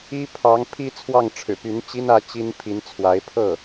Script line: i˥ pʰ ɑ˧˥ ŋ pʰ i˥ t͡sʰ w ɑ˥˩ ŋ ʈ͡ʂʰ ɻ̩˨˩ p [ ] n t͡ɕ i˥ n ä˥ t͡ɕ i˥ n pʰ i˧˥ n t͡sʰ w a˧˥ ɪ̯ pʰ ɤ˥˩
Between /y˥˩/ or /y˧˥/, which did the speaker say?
y˧˥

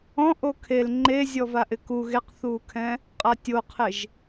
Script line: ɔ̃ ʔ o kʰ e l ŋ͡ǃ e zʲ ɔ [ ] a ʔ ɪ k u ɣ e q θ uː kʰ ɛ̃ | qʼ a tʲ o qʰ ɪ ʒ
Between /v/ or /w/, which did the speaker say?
v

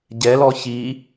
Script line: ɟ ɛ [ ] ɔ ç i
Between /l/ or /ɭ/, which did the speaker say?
l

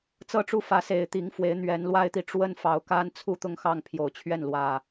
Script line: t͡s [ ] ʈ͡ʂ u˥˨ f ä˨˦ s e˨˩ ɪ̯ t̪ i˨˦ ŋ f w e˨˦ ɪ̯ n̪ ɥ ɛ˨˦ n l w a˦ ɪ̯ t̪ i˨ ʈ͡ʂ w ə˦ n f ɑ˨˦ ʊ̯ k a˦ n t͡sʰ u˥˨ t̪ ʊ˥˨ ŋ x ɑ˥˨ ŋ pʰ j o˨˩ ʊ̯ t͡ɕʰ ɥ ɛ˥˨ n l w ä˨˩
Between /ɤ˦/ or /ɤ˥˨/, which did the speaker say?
ɤ˦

